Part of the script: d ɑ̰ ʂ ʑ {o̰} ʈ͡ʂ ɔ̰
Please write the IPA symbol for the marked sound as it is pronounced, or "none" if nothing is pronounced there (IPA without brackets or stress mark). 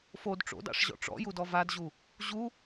ɔ̰